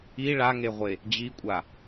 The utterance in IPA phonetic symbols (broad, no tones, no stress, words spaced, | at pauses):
i ɭaŋeʁʷe | d͡ʑikʷʼa